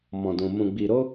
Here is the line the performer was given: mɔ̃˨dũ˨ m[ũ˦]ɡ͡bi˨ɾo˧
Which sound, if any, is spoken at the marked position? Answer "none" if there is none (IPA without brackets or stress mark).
ũ˨